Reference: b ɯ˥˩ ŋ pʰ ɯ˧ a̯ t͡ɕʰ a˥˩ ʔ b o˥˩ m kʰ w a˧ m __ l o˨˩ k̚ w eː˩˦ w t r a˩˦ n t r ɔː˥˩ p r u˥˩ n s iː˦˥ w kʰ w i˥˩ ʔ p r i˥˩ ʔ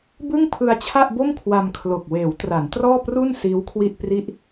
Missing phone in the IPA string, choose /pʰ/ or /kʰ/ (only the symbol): kʰ